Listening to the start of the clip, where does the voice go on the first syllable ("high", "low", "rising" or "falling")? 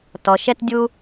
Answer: low